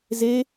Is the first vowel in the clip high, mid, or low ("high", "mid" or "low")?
mid